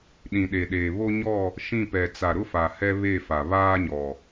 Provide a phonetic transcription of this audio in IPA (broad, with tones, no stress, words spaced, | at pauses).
ɗĩ˨ɗe˨ɗeː˨ βo˦ɲɔ˦˨ | ʃĩ˦˨pɛ˨ t͡sa˨ɾʊ˦fa˨ hɛ˦βe˦˨fa˨ βaː˦ɲɔ˨